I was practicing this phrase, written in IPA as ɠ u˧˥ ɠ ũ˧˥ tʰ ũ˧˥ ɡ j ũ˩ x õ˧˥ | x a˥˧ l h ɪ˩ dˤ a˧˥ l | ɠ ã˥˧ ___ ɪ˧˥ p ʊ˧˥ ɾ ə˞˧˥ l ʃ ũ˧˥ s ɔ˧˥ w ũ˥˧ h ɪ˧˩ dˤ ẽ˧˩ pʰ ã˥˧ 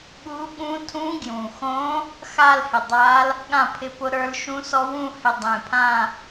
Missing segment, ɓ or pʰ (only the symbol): pʰ